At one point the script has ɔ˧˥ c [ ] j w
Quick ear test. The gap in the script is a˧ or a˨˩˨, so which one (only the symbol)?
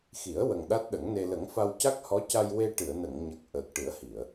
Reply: a˧